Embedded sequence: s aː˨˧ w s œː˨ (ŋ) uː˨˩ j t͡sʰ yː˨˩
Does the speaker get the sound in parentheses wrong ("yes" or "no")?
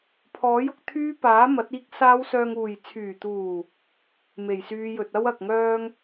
no